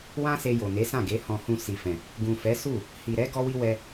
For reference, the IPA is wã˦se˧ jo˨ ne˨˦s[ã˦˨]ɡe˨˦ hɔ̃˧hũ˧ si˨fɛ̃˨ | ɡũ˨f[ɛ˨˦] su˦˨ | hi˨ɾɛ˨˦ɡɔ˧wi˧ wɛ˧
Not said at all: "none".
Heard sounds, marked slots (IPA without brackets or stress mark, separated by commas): ã˦˨, ɛ˨˦